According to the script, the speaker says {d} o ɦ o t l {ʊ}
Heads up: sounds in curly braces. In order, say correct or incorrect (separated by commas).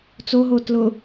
incorrect, correct